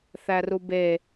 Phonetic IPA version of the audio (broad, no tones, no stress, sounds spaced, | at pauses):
θ æ r u b e